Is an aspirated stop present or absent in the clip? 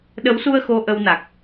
absent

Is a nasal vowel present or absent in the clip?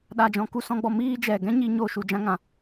present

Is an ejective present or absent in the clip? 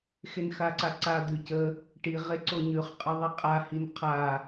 present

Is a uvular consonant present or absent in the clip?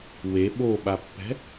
absent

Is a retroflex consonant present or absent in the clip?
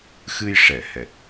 present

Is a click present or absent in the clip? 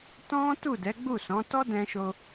absent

